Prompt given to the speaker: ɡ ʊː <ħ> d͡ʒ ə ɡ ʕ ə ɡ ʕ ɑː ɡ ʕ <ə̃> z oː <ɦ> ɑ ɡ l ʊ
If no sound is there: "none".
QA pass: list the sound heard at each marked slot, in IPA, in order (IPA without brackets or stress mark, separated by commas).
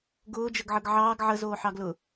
none, ə, ħ